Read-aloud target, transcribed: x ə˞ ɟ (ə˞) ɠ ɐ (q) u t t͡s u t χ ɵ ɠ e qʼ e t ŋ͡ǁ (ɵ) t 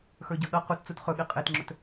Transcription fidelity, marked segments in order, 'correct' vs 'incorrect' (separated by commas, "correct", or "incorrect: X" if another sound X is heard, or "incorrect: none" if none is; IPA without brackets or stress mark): incorrect: ɐ, correct, correct